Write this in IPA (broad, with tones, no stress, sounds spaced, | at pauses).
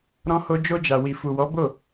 ɾ ɔ̃˧ h o˧ d͡ʒ o˧ d͡ʒ a˨ w i˨ f u˨ w ɔ˨˦ b o˦˨